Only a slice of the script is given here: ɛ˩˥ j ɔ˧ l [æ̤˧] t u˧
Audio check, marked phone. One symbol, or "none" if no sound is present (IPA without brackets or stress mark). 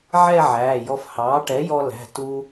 æ̤˩˧˩